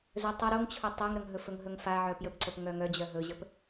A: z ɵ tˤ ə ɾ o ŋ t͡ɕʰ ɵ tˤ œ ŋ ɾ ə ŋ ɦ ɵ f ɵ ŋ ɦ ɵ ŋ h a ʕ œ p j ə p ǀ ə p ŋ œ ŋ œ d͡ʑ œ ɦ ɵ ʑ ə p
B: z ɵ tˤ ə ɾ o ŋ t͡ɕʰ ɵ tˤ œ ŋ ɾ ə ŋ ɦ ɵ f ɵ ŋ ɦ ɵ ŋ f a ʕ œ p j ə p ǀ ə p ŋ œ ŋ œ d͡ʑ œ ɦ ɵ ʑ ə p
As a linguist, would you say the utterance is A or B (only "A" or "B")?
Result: B